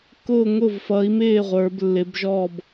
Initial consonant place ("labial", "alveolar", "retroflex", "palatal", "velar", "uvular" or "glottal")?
velar